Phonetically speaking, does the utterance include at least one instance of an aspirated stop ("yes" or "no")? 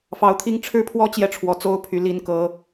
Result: yes